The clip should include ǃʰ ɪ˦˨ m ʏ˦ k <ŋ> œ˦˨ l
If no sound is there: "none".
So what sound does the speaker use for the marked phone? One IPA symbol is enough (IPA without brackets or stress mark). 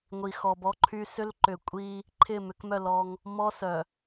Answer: m